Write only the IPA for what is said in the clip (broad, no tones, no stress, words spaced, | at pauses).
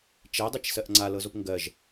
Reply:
t͡ʃɛdˤit͡ʃsɜʔ ŋ͡ǀalɤzop ŋɡɜʒ